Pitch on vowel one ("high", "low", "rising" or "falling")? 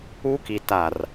high